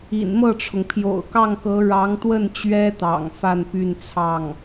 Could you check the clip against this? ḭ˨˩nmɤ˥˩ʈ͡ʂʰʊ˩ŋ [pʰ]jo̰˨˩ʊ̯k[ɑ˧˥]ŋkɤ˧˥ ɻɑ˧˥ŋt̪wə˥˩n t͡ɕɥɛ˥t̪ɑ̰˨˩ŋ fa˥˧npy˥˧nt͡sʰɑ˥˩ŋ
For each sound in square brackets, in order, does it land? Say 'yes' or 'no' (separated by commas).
yes, no